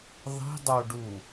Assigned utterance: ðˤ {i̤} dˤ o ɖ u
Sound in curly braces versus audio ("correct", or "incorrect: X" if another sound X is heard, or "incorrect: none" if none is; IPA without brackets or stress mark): correct